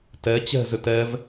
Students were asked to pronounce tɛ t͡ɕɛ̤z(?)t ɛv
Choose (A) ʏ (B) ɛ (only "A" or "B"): A